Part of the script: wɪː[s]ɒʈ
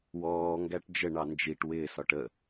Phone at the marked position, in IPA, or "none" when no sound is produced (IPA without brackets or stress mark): s